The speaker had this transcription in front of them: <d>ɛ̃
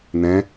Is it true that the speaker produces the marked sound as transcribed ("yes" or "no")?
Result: no